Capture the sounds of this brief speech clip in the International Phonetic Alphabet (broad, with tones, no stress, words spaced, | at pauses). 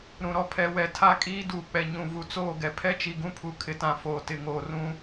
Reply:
ɾũ˨ɾɔ˦pʰɛ˨˦ wɛ˨tʰa˦kʼiː˦ duː˨k͡pɛ˨ ɲũ˨ vu˨t͡soː˦˨ɡɛ˨ pʰɛ˦t͡ʃi˨ɡũ˦pʰu˨ kʰɪ˨tã˨ foː˨tɪ˨ŋoː˨ rũ˦